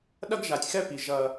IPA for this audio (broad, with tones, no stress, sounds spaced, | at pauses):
ɗ ɐ˦ ɡ ʒ a˨ tʲ x ɛ˦ p i˨ ʒ ɐ˦